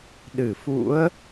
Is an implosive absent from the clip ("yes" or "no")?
no